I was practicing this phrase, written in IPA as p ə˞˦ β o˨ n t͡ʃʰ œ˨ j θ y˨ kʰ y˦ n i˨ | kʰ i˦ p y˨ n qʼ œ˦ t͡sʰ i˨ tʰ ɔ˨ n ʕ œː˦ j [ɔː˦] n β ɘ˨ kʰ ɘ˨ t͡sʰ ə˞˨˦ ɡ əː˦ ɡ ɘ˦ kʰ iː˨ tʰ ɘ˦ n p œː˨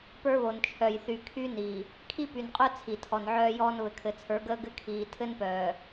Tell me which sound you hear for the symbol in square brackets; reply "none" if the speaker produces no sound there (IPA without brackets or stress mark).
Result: ɔː˦